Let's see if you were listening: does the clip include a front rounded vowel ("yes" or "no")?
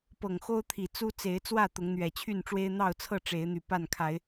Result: yes